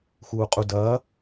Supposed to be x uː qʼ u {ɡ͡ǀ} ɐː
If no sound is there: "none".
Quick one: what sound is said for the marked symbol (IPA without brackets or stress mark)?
d